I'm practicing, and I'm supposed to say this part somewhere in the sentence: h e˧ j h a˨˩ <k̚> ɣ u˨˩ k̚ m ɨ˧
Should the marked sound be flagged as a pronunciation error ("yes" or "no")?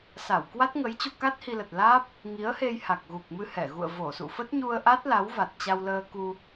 no